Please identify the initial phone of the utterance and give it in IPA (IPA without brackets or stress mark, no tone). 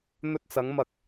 n̪